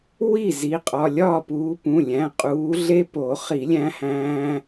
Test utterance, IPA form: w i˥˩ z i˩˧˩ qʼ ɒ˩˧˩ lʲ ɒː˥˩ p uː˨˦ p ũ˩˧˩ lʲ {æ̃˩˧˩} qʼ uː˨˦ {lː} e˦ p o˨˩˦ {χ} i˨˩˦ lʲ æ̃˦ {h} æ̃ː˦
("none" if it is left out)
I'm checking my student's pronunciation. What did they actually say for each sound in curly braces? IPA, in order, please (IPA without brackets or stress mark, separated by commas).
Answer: æ̃˩˧˩, ɮ, χ, h